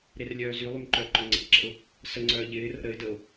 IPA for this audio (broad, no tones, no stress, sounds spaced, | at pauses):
ɾ e r lʲ œː z y lˠ y m ǃ œ ə̯ ǃ ɵ ŋ͡ǀ ɛ̰ ǁ ə̰ ʊ̯ | s ə ŋ͡ǀ œː ʎ ɪː r ə̰ ɾ ə ɪ̯ d ə ʊ̯